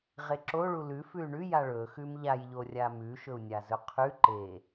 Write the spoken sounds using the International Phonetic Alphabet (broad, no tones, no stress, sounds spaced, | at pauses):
ʁ e ǁ o ɭ u l ʉ f ʉ y̯ ɳ ʉ j a ɭ ɵ x ʉ m ʎ a j ʎ o rʲ a m ʉ ʃ ɵ u̯ nʲ a z ɵ qʰ ʉ ǃ e